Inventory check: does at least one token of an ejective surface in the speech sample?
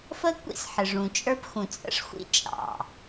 yes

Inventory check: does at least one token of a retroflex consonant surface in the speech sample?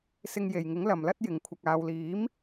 no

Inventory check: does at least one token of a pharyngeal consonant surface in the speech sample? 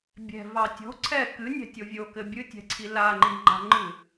no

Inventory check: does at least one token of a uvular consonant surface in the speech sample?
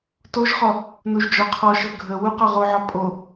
yes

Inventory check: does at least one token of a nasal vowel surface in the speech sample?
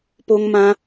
yes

